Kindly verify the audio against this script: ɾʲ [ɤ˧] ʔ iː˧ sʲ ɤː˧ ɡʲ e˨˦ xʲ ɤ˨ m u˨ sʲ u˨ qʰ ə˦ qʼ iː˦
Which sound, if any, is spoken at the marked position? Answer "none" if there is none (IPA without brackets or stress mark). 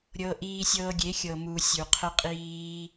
ɤ˧